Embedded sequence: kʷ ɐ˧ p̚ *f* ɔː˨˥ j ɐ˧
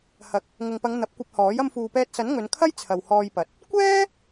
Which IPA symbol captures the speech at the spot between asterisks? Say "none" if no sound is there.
h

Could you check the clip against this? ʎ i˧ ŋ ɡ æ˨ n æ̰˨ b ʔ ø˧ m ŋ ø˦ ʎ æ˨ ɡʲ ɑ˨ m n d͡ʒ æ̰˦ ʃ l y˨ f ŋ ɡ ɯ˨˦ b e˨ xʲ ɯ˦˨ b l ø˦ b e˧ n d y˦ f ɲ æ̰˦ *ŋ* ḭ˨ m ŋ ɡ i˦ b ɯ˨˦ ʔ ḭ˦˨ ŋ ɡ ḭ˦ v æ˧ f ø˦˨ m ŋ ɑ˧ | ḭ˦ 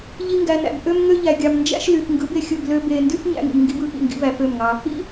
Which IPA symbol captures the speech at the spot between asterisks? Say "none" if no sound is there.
ŋ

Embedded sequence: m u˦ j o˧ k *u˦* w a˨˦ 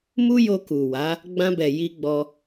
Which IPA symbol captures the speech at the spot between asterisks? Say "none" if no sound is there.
u˨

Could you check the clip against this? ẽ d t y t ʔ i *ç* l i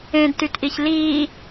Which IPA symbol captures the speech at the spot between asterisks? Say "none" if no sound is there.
ç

